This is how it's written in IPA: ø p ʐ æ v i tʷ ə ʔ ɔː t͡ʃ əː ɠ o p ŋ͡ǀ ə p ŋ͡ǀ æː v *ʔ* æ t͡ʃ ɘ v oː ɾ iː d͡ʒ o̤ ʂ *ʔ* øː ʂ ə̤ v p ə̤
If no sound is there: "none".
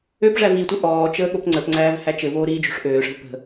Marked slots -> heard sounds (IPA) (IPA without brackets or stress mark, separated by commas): h, ʔ